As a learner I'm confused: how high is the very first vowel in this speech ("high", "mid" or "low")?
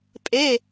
mid